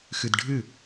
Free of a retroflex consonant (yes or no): no